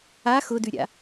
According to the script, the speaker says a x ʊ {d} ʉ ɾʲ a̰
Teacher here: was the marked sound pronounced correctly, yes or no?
yes